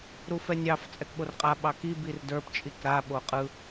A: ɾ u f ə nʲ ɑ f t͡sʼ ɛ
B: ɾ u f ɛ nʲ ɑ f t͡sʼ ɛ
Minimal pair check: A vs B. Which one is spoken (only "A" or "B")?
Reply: B